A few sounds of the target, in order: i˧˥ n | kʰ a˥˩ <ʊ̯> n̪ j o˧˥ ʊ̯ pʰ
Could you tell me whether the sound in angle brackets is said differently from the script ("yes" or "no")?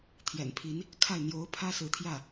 yes